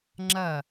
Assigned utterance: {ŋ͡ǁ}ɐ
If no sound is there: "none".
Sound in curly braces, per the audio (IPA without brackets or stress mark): ŋ͡ǁ